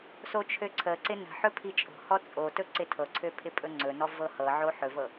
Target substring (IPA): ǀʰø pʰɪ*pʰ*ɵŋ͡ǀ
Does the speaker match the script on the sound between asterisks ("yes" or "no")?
no